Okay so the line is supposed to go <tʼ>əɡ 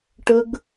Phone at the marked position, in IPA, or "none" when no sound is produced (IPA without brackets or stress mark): ʈ